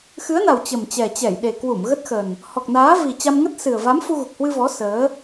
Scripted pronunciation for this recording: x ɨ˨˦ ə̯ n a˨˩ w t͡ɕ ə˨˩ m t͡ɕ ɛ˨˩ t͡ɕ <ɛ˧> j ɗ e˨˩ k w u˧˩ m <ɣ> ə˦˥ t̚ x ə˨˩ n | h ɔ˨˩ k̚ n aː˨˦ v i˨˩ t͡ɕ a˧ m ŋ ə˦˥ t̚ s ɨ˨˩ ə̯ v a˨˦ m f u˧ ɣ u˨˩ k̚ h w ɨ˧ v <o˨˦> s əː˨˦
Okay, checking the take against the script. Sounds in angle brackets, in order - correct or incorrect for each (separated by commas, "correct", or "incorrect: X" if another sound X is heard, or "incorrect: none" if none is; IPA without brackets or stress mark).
incorrect: ɛ˧˩, correct, incorrect: ɔ˨˦